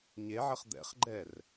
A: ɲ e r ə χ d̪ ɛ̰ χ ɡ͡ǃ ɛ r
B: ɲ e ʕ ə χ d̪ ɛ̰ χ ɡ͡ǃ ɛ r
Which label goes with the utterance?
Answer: B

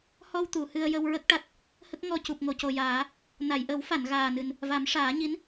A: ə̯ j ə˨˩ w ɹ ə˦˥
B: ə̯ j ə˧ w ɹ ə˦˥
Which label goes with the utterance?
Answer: B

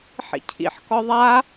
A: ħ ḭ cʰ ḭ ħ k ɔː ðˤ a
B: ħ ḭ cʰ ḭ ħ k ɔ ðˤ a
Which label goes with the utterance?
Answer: B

